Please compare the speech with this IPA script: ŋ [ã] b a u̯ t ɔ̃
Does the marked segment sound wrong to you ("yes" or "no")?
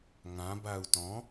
no